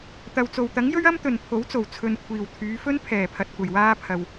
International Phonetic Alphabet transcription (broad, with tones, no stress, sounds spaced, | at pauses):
t̪ ɐ˨ w t͡s o˨ w t̪ ɐ˨˥ ŋ j ɵ˥ ɥ ɐ˥ m t̪ ɵ˨ n pʰ o˨˥ w t͡s o˨˩ w t͡sʰ ɵ˨ n kʷʰ iː˨˩ w t̪ʰ yː˨˧ f ɵ˥ n pʰ ɛː˨˩ pʰ ɐ˨ t̚ kʷ ɐ˨˩ j w aː˧ pʰ ɐ˨ w